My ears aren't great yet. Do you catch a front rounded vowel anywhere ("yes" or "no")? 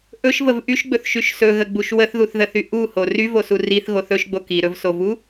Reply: yes